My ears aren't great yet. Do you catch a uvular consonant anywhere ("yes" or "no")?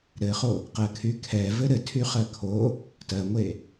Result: yes